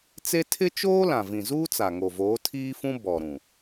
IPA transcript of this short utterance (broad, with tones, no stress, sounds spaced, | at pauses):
t͡s e˦ tʰ ɪ˦ t͡ʃ oː˦ l ã˨ v ĩ˨ z uː˦ t͡s a˨ ŋ o˨ v oː˨˦ tʰ iː˦ f ũ˦ b ɔ˨ ɾ ũ˨